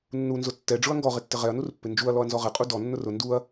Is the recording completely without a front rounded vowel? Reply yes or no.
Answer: yes